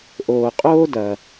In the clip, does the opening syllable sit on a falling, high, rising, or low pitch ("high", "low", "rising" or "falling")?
low